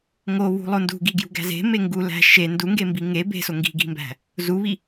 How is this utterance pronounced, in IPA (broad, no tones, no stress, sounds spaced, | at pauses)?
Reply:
ŋ o β ṳ lˠ o n d ṳ ɡ i ɡ j ṳ ɡ æ̤ z e̤ m e ŋ ɡ u l æ̤ ʃ e n d u ŋ ɡ e m b i ŋ e b e̤ s o ŋ ɡ i̤ ɡ i̤ m b æ̤ | z u β i